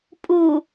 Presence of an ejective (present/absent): present